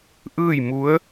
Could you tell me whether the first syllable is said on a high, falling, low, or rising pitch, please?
falling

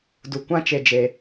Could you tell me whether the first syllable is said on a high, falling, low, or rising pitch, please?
low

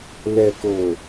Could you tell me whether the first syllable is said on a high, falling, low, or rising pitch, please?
low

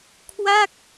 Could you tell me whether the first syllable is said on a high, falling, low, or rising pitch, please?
falling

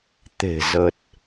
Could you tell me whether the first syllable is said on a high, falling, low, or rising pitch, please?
low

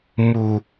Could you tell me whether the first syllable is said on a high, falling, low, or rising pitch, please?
low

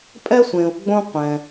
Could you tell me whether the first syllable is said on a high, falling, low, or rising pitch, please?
high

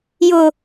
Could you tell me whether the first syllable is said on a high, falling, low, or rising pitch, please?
low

